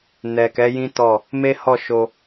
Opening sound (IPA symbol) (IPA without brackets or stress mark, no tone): n